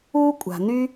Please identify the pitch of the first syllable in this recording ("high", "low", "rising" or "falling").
high